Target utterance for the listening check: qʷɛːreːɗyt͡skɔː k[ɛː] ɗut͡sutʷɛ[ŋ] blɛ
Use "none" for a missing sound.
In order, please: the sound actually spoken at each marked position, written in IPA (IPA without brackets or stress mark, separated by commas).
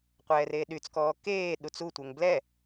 eː, ŋ